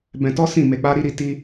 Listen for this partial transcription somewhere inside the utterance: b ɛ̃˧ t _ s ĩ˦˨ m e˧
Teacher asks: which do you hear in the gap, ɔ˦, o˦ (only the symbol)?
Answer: ɔ˦